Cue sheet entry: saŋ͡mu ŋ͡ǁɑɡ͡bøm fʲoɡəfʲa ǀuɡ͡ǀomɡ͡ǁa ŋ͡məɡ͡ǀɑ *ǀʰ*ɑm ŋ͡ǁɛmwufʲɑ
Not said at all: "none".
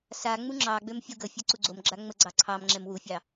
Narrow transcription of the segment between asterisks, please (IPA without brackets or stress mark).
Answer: ǀʰ